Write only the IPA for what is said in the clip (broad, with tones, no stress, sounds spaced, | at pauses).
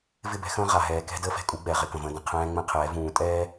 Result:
v ɪ˦˨ b ɛ̤˦ x ə̃ː˦ ʁ a˨ ɦ ɛː˨ k ɛ̤˦ d əː˦ f ɛ̤˨ kʼ u˨˦ ɡ͡b ɛ˨ ʁ ɪ˦ k ə̃˨ v ə̃ː˦ d ə̃˨ qʰ ɛ̃ː˦ ŋ͡m ɛ̃˦ qʰ ɛː˨˦ v ũː˨ tʼ ɛː˦